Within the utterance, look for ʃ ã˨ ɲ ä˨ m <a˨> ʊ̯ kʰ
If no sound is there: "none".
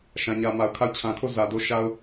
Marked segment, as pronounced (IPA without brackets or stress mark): a˨